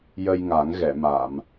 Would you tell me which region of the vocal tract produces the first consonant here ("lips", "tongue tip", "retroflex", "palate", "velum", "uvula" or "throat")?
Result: palate